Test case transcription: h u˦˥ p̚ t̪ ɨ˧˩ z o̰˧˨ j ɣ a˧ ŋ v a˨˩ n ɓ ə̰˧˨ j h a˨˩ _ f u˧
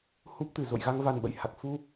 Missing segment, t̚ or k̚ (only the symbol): k̚